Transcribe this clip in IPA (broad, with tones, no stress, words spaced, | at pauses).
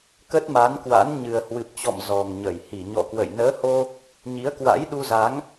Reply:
kə˦˥t̚ma˨˦nkwa̰˧˥n ɲɨ˨˩ə̯hwɨ˨˩p̚t͡ɕɔ̰˧˨m zɔ˨˩ŋɲə˧˩j hi˧˩ɲɔ̰˧˨kwə̰˧˨j nəː˨˦ho˧ | ɲi˨˦ə̯kwa̰˧˥jɗu˧za˨˦ŋ